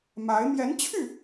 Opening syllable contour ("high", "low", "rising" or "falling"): rising